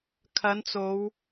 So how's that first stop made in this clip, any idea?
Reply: aspirated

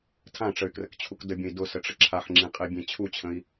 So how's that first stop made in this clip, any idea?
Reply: aspirated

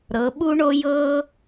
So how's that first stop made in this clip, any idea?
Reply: implosive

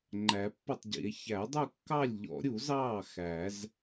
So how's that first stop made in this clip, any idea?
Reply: click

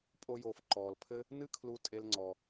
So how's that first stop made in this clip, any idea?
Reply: ejective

